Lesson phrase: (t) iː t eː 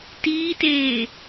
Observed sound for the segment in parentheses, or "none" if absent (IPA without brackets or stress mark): t